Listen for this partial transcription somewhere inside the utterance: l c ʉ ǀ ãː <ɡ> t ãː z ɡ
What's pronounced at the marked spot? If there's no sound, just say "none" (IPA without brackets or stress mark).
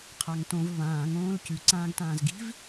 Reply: ɡ